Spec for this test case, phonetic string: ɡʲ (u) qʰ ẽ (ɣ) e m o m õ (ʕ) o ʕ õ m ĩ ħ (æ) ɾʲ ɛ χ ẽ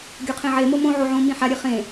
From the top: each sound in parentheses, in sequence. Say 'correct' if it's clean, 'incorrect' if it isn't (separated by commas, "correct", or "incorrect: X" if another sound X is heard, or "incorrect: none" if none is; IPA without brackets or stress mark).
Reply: incorrect: o, incorrect: ʕ, correct, incorrect: a